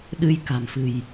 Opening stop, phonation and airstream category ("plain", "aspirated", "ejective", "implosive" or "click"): implosive